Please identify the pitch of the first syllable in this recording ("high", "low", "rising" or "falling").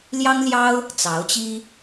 high